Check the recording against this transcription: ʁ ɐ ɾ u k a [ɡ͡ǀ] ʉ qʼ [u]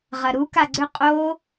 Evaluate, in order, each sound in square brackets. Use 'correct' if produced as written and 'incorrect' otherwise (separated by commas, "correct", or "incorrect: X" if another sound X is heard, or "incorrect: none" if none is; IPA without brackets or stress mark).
correct, incorrect: o